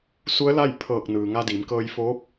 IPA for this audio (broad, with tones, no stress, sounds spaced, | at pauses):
s u˧˥ ə̯ l a˥˨ j pʰ ɤː˧˩ k̚ n ɯː˩ ŋ a˧ d iː˩˧ m k ɤː˧ j f oː˧˥ p̚